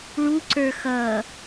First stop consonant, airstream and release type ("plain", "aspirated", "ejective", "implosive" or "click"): click